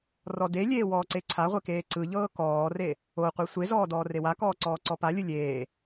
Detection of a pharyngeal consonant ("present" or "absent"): absent